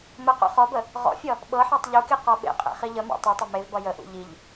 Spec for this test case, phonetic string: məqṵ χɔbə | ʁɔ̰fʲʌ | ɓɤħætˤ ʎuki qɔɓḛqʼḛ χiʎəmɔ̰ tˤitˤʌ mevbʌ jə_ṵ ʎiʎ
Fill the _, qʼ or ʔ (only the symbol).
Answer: ʔ